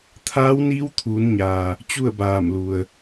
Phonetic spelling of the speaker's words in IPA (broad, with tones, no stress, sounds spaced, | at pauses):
t̪ʰ aː˧˥ w n iː˧˥ w t̪ʰ uː˩˧ n ɲ aː˩ | t͡ɕ u˥˨ ə̯ b aː˧˩ m l u˩ ə̯